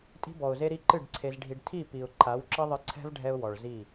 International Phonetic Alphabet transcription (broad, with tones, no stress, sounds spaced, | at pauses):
tʼ i̤˧ b ɔ˨ ʊ̯ z e˧ ɾ i˧ ǃ ɨ˦˨ ɖ ǀʰ e˧ z ɖʱ i˧ ɖ tʰ i˦˨ p i˨ ʊ̯ ǃʰ a˨˦ w ǁ ɐ˦ ðˤ ɨ˧ ǀʰ ɛ̤˦ v ɖʱ ɛ˧ ʊ̯ w ɔ˨ ɭ z i˦˨